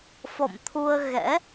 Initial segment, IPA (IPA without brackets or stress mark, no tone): f